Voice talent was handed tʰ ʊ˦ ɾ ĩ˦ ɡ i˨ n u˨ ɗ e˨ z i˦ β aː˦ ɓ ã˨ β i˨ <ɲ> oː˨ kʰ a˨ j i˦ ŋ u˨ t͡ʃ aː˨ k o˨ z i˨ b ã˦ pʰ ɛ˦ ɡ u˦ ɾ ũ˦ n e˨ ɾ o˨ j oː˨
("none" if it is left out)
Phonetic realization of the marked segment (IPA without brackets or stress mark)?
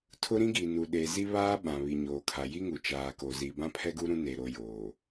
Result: ɲ